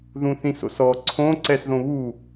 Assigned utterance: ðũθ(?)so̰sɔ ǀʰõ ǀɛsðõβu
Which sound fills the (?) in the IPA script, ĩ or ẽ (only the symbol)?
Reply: ĩ